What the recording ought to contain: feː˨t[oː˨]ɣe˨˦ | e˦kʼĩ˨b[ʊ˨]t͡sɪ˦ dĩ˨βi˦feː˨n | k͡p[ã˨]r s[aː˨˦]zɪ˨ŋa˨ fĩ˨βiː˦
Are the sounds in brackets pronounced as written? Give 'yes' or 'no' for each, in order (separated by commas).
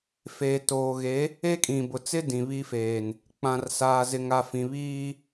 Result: yes, yes, yes, no